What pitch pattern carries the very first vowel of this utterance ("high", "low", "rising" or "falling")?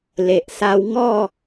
low